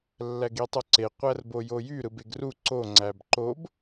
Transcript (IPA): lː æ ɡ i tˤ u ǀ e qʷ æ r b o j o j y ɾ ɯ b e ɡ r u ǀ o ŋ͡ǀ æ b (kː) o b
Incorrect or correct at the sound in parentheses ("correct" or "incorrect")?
incorrect